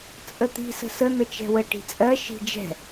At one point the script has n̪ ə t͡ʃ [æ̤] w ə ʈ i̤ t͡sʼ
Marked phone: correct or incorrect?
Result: incorrect: ɛ̤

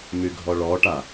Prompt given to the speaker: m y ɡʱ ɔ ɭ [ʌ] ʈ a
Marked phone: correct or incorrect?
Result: incorrect: ɔ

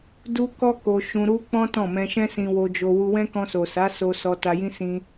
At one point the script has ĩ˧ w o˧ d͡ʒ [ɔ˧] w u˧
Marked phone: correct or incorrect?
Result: incorrect: o˧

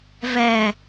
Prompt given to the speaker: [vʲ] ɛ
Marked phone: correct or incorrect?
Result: incorrect: v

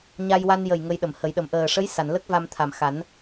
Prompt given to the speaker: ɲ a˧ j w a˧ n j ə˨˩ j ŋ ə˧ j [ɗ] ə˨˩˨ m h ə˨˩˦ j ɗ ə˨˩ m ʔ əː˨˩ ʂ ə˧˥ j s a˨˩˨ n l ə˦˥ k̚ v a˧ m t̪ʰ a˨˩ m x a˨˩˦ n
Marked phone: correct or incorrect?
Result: correct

